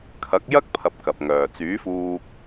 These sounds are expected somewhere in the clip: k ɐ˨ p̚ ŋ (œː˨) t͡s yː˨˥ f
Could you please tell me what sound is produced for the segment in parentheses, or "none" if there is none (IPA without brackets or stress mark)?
œː˨